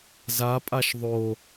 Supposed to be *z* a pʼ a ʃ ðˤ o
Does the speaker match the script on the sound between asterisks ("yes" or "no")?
yes